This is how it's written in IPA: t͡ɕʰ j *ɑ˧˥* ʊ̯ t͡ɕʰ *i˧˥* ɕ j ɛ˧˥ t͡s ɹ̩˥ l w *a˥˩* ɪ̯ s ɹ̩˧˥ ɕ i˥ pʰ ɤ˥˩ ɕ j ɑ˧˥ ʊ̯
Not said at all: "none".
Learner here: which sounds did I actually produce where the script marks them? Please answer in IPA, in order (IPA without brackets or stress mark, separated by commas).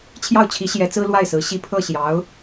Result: ɑ˥˩, i˧˥, a˥˩